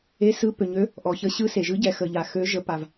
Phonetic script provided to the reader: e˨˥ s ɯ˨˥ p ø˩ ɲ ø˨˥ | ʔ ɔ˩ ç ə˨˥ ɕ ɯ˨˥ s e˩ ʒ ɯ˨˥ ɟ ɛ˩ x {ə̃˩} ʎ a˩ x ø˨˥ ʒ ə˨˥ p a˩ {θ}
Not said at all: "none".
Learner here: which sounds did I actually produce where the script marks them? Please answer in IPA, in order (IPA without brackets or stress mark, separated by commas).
ə˩, v